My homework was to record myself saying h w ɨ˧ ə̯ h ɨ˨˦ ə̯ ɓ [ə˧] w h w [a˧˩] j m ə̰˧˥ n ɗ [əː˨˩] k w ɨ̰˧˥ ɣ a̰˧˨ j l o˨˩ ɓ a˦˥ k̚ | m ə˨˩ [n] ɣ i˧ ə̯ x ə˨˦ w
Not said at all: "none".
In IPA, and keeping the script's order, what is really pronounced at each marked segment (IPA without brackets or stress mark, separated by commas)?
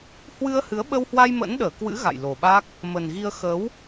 ə˧, a˧, əː˧˩, n